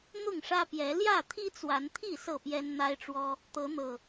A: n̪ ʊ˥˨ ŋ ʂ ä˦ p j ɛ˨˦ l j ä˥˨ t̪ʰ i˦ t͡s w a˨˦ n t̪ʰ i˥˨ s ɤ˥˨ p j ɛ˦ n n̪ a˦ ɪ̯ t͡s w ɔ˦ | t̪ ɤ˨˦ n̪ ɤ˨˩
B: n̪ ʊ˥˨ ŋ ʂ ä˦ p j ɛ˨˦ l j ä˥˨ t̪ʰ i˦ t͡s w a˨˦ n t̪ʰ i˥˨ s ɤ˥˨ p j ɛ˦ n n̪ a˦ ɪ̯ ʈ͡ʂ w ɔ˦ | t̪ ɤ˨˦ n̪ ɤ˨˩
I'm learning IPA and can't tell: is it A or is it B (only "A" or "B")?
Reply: B